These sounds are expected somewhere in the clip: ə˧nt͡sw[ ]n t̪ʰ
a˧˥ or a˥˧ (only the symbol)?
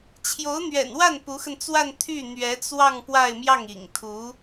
a˥˧